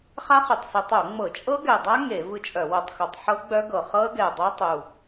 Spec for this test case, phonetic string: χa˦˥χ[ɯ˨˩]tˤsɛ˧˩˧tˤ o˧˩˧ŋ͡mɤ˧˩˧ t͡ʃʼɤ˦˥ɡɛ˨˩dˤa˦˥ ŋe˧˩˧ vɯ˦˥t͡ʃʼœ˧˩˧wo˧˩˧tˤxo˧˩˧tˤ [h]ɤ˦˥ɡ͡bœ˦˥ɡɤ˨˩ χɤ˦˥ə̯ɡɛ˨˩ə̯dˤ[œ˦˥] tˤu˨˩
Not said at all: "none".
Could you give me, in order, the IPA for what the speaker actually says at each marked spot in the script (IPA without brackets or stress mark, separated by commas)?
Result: ɯ˨˩, ħ, œ˦˥